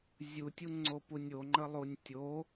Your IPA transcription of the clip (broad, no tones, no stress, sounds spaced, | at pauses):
zʲ u tʲ u ŋ͡ǀ o p u nʲ o ŋ͡ǃ ə lˠ u nʲ tʲ o